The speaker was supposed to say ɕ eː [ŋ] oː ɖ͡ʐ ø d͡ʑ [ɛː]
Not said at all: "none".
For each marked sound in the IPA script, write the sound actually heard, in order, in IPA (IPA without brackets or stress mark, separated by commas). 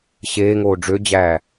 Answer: ŋ, æː